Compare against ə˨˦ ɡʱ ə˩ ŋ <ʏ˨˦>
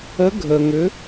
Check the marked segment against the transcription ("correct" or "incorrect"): correct